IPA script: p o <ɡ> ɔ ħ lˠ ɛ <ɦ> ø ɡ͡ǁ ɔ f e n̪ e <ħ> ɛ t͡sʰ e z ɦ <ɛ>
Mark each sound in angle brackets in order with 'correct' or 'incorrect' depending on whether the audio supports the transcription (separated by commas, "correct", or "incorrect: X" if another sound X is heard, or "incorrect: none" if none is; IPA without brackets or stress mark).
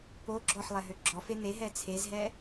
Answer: incorrect: ɡ͡ǁ, correct, incorrect: ɦ, correct